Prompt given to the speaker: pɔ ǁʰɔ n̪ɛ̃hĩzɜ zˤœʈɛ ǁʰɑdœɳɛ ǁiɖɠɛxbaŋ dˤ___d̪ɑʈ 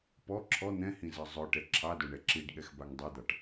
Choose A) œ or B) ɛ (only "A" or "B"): B